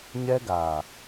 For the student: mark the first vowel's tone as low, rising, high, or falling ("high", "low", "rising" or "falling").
high